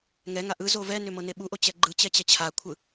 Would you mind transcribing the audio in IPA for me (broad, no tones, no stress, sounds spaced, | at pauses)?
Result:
ŋ ɛ ŋ a ʔ ɯ z o v ɛ n ʏ m ɤ n e ɓ u ʔ o t͡ɕ ɛ ɡ͡ǃ ɯ t͡ɕ ɛ t͡ɕ ɛ t͡ɕʰ a kʷʰ ɯ